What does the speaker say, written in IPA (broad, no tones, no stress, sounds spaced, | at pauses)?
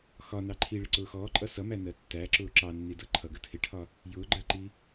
x ɒ n ɑ ǃʰ i ɭ ɪ ǀ ʊː x ɔː ǃʼ ʌ s ʌ m æ n ɜ tː æ ǁ ʊː ǁ ɑ nː i d ʌ ǃʰ ʌ ɡ ə tʰ ɪ ʈʰ ɒ | j ʊː ɡ͡ǃ ɜ ǃ i